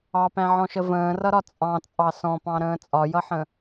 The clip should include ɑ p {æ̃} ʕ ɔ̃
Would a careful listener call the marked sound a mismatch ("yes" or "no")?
no